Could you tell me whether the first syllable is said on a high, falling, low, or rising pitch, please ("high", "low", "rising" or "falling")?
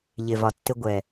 low